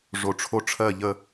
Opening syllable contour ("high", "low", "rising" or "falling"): low